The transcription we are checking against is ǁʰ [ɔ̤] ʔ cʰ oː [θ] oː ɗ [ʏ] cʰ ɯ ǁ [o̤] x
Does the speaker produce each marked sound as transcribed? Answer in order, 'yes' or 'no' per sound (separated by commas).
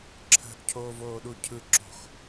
no, no, no, yes